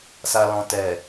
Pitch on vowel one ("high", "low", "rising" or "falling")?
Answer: low